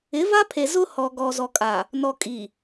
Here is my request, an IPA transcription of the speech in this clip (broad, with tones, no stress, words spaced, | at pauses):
ɪ˨˦va˦pʰe˨ zʊ˦ hɔ˨ ɡɔ˨zɔ˨kʼa˨ | nɔ˨ kʼi˨